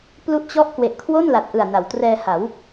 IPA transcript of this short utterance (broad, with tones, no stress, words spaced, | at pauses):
plu˥˩ʔt͡ɕɔ˥˩ʔ kwe˨˩ʔkʰwo˥˩nla˨˩t̚ʔɯ˨˩a̯ na˩˦wtrɛː˧ha˩˦w